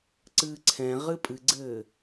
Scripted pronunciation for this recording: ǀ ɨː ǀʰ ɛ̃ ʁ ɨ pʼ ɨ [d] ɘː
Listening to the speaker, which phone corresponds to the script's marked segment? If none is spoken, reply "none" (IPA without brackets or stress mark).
ɡ͡ǀ